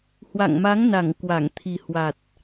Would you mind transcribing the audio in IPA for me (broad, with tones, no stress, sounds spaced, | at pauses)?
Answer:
h w a̰˧˨ ŋ m a˨˦ ŋ n a˧˩ ŋ k w a˧˩ ŋ t̪ʰ i˨˩ h w a˨˩ t̚